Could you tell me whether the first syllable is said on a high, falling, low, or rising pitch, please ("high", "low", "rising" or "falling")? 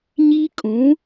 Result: high